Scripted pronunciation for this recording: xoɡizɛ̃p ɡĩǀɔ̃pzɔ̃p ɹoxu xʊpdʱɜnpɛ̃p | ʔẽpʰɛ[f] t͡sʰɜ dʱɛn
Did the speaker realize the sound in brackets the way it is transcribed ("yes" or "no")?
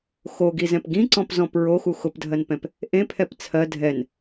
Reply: no